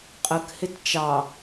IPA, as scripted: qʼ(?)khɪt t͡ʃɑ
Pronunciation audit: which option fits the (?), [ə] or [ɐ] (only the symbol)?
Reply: ə